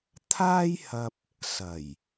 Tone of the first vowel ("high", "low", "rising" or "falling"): high